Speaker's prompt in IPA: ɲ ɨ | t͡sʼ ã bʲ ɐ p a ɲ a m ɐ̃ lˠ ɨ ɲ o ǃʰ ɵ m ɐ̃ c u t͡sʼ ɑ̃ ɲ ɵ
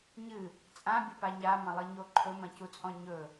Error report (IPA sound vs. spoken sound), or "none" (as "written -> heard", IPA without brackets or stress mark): ɑ̃ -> ɔ̃